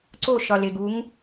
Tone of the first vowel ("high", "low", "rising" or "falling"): falling